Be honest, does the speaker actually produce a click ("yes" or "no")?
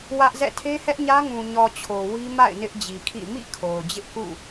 no